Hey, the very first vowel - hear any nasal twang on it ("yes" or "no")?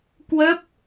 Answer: no